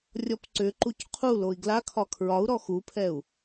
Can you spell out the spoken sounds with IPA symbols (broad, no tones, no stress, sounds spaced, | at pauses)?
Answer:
rʲ ɔ p ǀ ʏ ǃ u c qʰ u l o i̯ ɡ l a kʰ ɒ kʰ ɹ ɒ u̯ ɾ ɔ x u pʰ ɛ u̯